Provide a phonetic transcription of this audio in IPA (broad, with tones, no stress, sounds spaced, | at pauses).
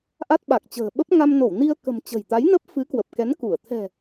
ʔ a˦˥ t̚ ɓ a˨˩ k̚ t͡ɕ ə̤ː˨˩ ɓ ə˦˥ p̚ ŋ a˧ m n o˧˩ w n i˧ ə̯ k ə̤˨˩ m t͡ɕ ə̤˨˩ j t̪ a˨˦ j n ə˦˥ p̚ f ɨ˨˦ k w ə˨˩ p̚ k ɛ˨˦ n k u˧˩ ə̯ t̪ʰ ɛ̤˨˩